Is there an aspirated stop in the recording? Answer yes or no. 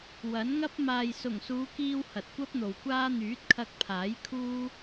yes